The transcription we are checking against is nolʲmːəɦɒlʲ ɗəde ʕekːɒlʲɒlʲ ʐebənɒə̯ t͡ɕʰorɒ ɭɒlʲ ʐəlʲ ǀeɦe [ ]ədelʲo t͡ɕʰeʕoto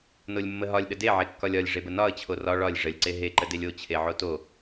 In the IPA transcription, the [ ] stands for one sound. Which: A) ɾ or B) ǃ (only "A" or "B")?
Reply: B